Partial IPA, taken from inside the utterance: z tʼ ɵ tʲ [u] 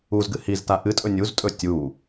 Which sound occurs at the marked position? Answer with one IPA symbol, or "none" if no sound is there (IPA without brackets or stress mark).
u